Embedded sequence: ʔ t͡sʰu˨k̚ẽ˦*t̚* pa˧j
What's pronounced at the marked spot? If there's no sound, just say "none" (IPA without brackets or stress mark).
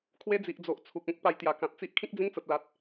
k̚